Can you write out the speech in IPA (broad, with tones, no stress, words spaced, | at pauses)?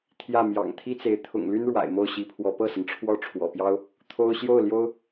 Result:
t̪ʰjä˥˩mjɑ̰˨˩ŋ t̪ʰi˥t͡se˧˥ɪ̯ t̪ʰʊ̰˨˩ŋly˥n ɻwa̰˨˩ɪ̯mo˥˩ʊ̯ɕi˧˥pʰwɔ˧˥ pɤ˥˩sə˩nʈ͡ʂʰwɔ˥˩ ʈ͡ʂʰwɔ̰˨˩pjɑ˥ʊ̯ | t̪ʰo˥ʊ̯ ɕjo˥˩ʊ̯ ljo˥ʊ̯